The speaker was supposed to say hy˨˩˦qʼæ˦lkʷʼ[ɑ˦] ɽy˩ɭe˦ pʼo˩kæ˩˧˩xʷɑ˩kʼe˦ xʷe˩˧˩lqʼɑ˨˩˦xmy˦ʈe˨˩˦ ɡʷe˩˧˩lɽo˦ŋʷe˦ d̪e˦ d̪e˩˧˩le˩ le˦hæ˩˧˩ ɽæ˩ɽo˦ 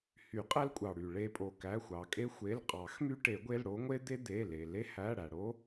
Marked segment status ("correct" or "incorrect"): incorrect